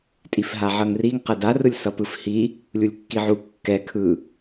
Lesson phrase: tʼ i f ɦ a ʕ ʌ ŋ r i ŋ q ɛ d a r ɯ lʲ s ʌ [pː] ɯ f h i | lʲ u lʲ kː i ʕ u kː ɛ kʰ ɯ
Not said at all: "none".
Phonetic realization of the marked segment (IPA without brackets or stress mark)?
p